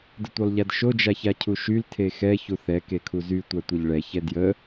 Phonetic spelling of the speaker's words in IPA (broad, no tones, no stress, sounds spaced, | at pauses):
d ə tʷ œ lˠ ʎ a d ʃ o d͡ʒ a ç a cʰ u ʃ y l tʰ e x ɛ ç u θ ɛ k e kʰ u z y tʷ a tʷ e ʎ ɭ ɛ ç ɛ d j ə